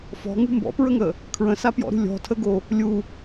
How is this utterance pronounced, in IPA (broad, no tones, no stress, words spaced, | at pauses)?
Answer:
fɔ̤ŋṳ mbɔ̰pɹəŋə | kʰɹə̃sapjɔ̰ɾṳ lʲɔ̤tʰəɡo | lʲu